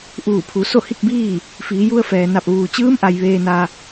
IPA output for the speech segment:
ʔ uː˧˩ pʰ u˩˧ s o˥˨ h i˥˨ k̚ b iː˥˨ | f iː˩˧ j u˧ ə̯ f ɛː˩ n a˧˩ p̚ ʋ uː˩ t͡ɕ ɯː˧˥ m ʔ a˩ j ʋ eː˧ n a˧

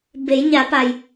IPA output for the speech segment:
b e˩˧ j ɲ a˩˧ p a˩ j

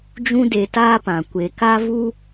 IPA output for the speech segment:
d͡ʒ ũ˦ d e˧ t aː˦ p ã˨ kʷ e˨ k a˦ v u˦

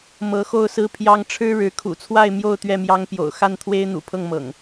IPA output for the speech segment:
m ɤ˨˦ x o˥˨ ʊ̯ s ɹ̩˦ pʰ j ɑ˦ ŋ ʈ͡ʂʰ ɻ̩˦ ɻ ɻ̩˨˦ kʰ ṵ˨˩ t͡sʰ w a˥˨ ɪ̯ m j o˥˨ ʊ̯ t̪ ɥ ɛ˥˨ m j ɑ˦ ŋ p j o̰˨˩ ʊ̯ x a˥˨ n t̪ʰ w e˦ ɪ̯ n̪ ṵ˨˩ pʰ ɤ˥˨ ŋ m ɤ̰˨˩ ŋ

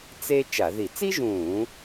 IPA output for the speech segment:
t͡s e˥ t͡ʃ a˧˩˧ ð i˧˩˧ t͡s i˥ ʒ ũː˧˩˧

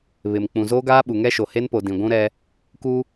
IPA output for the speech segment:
β ɪ˨ m k͡p ũ˨ z oː˦ ɡ aː˦ ɓ u˨ ŋ ɛ˦ ʃ o˨ h e˦ n p o˨ d ĩ˨ ɡʷ ũ˦ ɾ ɛ˦ | k u˦

